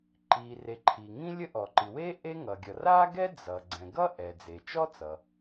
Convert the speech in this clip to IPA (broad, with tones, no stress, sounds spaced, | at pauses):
ǃ i˩ r e˩ ǃʰ i˩ ŋ ĩ˥ lʲ ə˥ ʔ ɔ˩ ǃ i˩ w e˥ ʔ e˥ ŋ ʌ˩ ɡʲ ʌ˩ r a˥ ɡ ɛ˥ d͡z ʌ˩ ɡ͡ǀ ɛ̃˩ ɡ ʌ˥ ʔ ɛ˩ d͡z e˩ t͡ʃ ɔ˥ t͡s ʌ˩